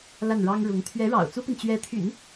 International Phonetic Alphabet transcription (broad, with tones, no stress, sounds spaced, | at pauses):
l a˥˩ n ɻ ɑ˥ ŋ ɻ ʊ˧˥ ŋ t̪ʰ ɥ ɛ˧˥ ɻ ɑ̰˨˩ ʊ̯ t͡s u˥ p i˨ n t͡ɕ ɥ ɛ˧˥ t̪ʰ y̰˨˩˦ n